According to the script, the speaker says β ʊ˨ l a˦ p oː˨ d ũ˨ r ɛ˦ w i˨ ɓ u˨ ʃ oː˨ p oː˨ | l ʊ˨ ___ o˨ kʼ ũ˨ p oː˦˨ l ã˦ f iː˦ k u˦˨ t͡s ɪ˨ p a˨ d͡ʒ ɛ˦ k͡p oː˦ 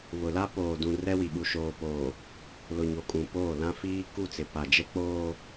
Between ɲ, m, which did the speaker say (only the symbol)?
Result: ɲ